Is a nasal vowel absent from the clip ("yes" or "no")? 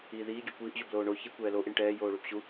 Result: yes